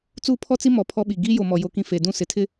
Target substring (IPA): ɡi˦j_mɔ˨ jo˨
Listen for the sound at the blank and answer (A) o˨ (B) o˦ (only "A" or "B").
A